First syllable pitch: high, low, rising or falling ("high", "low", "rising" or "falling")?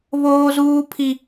high